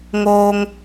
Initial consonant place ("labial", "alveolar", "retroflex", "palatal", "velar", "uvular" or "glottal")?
velar